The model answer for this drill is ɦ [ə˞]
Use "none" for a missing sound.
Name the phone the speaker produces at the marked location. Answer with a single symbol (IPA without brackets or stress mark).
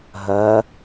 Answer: ɜ